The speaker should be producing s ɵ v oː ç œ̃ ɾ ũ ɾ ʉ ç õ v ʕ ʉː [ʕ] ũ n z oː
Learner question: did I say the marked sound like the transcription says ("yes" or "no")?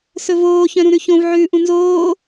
no